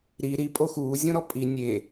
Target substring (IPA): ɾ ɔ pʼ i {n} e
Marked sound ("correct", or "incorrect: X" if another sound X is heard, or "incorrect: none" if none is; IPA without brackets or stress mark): incorrect: nʲ